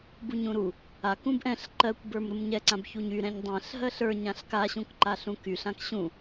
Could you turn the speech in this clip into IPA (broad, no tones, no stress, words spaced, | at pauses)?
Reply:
buɲũɾu | ak ũbʔɛ̃ɬ ǃɜkʷbə˞m ɾumɲɛǀãbçuɲ y ɾɛ̃ɲdˤɛ̃ɬ ɦɜɬə˞ ɲãɬkaɕũkǃa ɬũkyɬ ãkɕũ